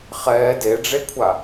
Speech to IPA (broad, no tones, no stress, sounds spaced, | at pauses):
χ ɛː d e ɖ͡ʐ e kʷʰ a